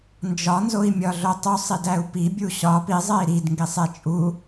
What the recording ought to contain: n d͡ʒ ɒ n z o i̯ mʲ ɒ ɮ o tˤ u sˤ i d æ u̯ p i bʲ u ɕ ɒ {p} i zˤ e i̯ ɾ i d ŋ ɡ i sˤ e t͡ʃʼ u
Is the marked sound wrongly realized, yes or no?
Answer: no